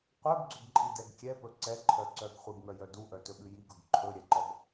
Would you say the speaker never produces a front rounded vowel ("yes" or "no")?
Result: no